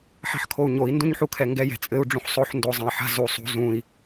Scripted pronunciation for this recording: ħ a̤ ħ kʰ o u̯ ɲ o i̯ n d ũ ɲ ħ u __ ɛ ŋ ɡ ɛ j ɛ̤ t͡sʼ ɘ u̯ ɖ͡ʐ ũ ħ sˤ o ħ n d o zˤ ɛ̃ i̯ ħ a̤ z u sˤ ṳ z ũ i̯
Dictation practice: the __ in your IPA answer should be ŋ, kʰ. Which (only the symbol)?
kʰ